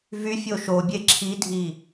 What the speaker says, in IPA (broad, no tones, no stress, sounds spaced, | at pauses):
v y fʲ o ʃ o bʲ e ǁʰ i dʱ i